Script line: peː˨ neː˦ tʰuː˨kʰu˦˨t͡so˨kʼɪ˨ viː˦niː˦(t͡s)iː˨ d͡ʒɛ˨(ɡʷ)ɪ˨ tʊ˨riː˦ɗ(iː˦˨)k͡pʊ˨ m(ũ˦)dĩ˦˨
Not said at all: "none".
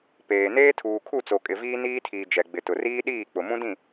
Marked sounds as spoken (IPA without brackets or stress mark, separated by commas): tʰ, ɡ͡b, iː˦˨, ũ˦